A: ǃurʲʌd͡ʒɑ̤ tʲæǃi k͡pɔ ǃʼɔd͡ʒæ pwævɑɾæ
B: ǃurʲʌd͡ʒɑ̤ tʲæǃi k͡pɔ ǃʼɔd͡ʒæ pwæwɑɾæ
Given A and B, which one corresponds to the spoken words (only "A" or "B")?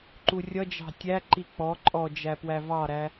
A